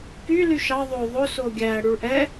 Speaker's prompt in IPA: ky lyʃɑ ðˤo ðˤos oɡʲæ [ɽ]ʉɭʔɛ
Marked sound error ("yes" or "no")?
no